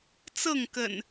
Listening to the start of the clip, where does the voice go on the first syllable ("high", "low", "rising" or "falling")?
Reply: falling